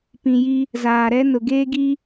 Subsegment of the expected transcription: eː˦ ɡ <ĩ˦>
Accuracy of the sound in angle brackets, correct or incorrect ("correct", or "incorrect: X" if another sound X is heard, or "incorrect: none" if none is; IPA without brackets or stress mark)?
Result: incorrect: i˦